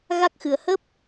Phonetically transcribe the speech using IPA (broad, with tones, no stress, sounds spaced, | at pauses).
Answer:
ɣ a˦˥ k̚ x ɨ˨˩ ə̯ h ə˦˥ p̚